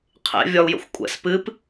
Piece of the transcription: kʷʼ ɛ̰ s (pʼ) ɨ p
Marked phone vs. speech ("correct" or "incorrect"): incorrect